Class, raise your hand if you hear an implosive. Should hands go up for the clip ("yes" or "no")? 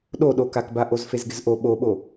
yes